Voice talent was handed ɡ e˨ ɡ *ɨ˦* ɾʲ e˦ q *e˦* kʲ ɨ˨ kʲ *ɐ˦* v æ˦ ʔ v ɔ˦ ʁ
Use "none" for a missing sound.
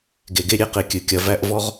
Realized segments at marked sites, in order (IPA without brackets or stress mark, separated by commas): e˦, e˨, ɐ˦